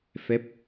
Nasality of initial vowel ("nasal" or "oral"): oral